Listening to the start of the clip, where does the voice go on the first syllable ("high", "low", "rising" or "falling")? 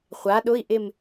rising